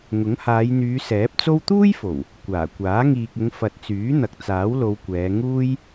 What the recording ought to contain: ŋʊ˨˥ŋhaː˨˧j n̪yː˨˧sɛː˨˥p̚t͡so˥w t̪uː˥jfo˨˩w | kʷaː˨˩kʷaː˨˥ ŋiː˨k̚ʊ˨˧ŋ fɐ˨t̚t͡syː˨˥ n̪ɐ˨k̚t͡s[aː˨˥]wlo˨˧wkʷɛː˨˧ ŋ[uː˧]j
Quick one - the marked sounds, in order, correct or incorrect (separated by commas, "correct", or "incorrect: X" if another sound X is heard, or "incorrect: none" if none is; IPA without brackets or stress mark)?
correct, incorrect: uː˥